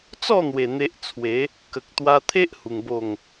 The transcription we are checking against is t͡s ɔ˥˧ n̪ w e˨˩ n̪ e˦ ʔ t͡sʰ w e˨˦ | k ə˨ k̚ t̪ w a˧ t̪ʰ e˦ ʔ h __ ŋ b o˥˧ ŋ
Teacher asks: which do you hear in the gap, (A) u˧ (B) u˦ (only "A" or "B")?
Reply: A